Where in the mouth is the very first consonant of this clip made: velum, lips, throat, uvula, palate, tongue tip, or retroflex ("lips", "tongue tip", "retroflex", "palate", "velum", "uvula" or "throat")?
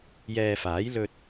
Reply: palate